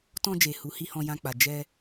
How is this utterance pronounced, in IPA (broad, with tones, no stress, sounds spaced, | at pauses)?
t ɔ̃˧ d͡ʒ e˨ h u˨˦ h i˧ h ɔ̃˧ j ã˧ k͡p a˨ d͡ʒ ɛ˧